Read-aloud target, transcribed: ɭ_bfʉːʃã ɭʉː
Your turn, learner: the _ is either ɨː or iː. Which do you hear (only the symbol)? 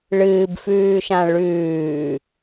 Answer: ɨː